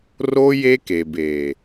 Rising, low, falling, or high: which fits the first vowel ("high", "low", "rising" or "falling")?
high